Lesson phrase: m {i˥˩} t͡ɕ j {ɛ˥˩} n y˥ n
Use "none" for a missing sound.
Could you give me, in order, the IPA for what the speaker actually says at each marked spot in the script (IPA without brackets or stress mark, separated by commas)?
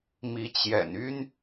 i˧˥, ɛ̰˨˩